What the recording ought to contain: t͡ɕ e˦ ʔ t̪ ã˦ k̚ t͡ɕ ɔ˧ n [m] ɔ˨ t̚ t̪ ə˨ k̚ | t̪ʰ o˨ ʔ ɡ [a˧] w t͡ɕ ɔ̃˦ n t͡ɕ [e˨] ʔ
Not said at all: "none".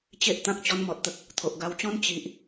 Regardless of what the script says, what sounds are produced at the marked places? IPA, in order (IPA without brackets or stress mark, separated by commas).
m, a˧, i˨